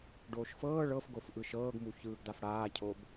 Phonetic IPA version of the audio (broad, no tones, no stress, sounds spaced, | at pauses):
ɖ oː ʃ f ɤː ɭ ɤ f ɡ o f ʔ ɯ ʃ ɤː ɡ m u ç ɯː ɡ d a f ɽ aː cʰ o b